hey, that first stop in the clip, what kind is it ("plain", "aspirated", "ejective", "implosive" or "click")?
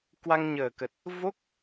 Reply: plain